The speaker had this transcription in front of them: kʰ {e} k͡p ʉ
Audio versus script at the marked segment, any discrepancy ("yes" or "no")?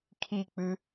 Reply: yes